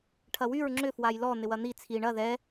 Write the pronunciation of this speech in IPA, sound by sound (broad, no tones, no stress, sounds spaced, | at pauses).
ʈʰ ɐ w y ɹ ŋ͡ǁ ʏ f w a j l ɔ n̪ ɪ w ɐ n̪ i t͡sʰ i ɳ ɐ ð ɛ